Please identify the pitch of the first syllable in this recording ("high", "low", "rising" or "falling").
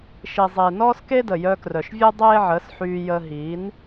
low